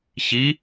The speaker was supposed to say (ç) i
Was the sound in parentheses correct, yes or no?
yes